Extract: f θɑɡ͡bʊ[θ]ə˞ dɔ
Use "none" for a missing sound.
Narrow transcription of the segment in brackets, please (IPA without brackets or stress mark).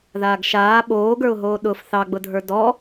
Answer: dʱ